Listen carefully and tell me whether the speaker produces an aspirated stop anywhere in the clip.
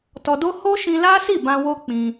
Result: no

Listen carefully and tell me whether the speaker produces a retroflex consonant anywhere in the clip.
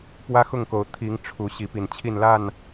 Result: yes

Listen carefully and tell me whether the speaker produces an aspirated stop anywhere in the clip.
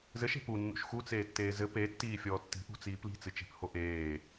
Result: no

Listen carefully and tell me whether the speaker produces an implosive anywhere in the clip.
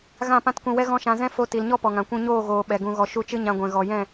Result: yes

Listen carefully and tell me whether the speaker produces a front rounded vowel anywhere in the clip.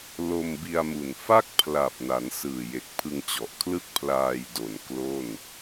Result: no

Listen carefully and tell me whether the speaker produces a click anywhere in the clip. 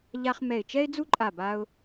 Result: yes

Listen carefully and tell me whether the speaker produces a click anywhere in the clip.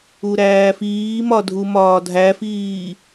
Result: no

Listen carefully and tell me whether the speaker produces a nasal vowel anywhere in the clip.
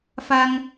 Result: no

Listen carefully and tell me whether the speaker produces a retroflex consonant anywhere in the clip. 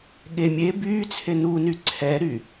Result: no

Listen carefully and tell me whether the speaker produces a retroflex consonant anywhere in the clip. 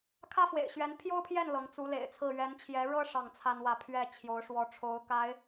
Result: yes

